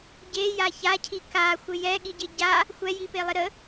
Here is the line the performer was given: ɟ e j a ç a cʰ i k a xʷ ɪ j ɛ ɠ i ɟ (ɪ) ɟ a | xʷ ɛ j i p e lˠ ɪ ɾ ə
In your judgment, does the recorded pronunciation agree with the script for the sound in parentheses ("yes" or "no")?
yes